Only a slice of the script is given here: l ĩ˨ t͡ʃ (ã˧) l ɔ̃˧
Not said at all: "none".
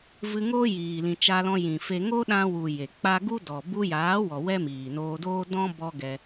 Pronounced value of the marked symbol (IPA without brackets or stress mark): a˧